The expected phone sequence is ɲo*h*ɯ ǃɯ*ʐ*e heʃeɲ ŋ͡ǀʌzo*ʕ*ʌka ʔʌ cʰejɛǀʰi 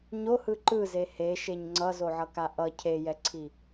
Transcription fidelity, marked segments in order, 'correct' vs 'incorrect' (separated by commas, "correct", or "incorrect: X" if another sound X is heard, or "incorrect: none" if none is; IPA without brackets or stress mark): correct, incorrect: z, correct